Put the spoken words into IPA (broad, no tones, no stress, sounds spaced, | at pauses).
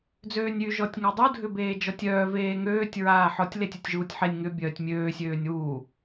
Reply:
d͡z øː nʲ y ʒ ɔ tʲ ŋ a dˤ u dʱ ʏ b eː d͡ʒ ɔ tʲ œː v eː ŋ øː tʲ ɹ aː ħ ɔ tʲ l e tʲ œ tʲ ʒ uː tʲ ħ e nʲ ŋ ʏ bʲ œː tʲ mʲ øː sʲ øː nʲ w uː